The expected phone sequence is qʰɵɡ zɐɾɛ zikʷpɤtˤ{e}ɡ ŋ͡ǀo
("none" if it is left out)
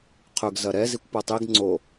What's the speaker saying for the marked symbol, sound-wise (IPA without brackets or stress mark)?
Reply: i